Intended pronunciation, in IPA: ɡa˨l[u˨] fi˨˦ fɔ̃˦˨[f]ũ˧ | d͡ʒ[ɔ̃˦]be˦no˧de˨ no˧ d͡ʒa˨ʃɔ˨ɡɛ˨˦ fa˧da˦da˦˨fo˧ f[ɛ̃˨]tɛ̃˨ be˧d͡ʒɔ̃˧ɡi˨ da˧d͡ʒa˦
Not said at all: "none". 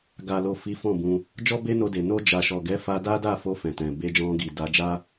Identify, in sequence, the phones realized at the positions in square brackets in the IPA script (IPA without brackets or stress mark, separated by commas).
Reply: o˨, b, ɔ˦, ɛ̃˨